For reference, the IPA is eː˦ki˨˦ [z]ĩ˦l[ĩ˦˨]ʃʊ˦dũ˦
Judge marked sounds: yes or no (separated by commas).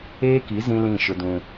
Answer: yes, yes